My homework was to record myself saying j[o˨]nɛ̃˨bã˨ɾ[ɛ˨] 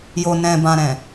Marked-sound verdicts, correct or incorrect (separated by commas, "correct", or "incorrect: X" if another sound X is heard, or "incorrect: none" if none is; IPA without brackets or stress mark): correct, incorrect: ɛ̃˨